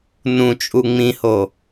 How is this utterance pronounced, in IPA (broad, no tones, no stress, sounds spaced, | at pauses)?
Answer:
n ũ t͡ʃʼ u ŋ͡m ĩ h o